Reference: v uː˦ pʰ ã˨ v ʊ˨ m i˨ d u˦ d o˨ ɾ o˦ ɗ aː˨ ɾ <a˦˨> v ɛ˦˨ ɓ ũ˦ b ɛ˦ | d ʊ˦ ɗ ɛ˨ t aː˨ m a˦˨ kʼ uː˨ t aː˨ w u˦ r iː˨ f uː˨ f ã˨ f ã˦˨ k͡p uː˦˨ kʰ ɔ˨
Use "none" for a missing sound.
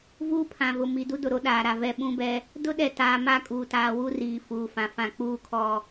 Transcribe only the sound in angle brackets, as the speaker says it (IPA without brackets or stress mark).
a˨